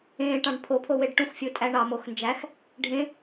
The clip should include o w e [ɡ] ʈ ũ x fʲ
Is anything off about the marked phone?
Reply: yes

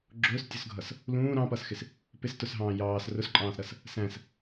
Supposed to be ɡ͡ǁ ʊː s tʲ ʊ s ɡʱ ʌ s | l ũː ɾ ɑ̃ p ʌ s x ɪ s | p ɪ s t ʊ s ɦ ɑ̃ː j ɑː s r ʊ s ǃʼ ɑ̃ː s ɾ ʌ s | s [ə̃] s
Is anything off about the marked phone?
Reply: yes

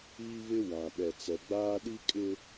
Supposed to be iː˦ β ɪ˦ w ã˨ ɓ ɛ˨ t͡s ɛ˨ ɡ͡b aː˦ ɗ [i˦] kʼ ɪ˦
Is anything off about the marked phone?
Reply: no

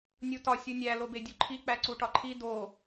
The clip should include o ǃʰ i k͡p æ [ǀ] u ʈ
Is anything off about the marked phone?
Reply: no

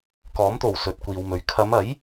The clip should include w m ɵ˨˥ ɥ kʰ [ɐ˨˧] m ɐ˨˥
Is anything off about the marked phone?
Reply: no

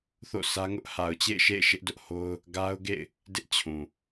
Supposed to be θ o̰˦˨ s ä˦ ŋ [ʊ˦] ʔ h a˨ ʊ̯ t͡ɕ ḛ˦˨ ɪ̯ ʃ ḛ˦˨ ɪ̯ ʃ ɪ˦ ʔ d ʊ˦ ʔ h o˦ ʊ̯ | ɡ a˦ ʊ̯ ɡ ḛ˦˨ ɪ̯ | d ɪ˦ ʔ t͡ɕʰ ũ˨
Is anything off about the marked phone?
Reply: no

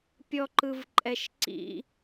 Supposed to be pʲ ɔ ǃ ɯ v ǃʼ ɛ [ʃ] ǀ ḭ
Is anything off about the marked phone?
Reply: no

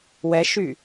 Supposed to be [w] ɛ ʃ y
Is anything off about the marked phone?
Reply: no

